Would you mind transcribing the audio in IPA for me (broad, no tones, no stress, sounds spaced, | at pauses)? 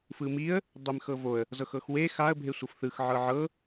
f ɯ m i ə̯ | dˤ e m x ɤ v o ə̯ | z ɤ x ɤ x w e x a ə̯ bʱ e sʷ ɤ f θ ɯ x ʕ ɤ ʕ ɤ